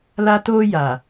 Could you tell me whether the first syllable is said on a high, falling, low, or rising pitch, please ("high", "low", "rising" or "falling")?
high